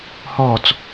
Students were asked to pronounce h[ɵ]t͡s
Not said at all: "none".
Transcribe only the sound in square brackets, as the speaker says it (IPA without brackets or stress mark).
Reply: ɔ